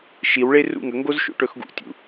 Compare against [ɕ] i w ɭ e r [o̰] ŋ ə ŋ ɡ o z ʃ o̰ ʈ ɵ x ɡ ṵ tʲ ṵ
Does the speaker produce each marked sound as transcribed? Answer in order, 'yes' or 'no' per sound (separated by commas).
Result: no, no